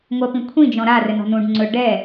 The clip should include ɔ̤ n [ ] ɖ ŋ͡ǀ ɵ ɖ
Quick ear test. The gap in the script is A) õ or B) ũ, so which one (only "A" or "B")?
B